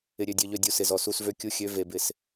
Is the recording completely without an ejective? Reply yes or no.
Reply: yes